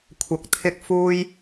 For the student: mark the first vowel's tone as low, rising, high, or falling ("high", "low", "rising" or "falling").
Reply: rising